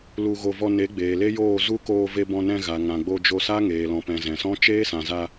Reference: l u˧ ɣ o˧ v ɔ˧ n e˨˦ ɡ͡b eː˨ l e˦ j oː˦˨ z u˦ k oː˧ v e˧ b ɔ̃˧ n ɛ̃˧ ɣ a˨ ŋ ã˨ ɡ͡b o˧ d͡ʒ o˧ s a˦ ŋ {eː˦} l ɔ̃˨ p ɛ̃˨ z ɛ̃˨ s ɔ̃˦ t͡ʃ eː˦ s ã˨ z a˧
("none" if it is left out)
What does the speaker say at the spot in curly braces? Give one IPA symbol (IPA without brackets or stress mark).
eː˨